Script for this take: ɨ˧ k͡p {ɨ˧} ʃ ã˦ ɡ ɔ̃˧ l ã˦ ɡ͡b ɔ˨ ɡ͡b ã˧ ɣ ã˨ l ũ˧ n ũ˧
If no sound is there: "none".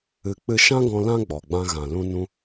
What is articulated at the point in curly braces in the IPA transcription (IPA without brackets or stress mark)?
ɨ˧